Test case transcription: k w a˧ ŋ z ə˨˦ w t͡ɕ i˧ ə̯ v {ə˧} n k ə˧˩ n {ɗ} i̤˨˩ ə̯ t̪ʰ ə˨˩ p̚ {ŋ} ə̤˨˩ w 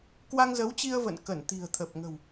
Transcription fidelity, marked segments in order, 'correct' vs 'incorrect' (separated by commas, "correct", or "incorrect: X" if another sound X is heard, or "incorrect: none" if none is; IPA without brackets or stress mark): incorrect: ə̰˧˨, incorrect: t̪, correct